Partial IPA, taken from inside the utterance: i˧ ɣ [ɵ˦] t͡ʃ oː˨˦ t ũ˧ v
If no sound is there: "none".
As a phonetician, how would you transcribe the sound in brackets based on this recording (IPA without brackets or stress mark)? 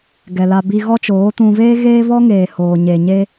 ɔ˦